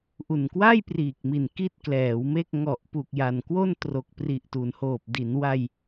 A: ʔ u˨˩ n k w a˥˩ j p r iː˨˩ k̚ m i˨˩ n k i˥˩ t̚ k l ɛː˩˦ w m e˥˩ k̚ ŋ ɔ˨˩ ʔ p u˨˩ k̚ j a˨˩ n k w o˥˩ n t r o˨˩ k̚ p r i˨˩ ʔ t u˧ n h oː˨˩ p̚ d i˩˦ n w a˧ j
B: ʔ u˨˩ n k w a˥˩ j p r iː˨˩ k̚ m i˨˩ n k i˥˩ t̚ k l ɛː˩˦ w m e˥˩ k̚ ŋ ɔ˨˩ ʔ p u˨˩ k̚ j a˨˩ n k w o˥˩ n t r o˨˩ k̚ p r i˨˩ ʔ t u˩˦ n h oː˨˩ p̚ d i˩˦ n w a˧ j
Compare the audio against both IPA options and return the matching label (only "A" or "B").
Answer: B